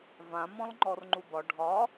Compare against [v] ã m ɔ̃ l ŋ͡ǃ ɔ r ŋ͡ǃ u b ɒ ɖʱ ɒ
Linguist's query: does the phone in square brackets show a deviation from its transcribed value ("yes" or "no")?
no